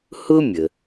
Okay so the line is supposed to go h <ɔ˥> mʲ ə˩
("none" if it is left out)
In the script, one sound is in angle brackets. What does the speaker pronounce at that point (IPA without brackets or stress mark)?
ʊ˥